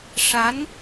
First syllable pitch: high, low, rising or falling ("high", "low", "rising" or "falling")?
rising